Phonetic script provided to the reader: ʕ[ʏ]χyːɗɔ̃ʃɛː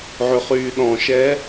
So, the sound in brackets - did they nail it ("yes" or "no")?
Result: yes